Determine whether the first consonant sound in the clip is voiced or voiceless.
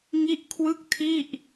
voiced